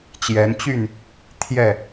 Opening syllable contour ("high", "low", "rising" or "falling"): rising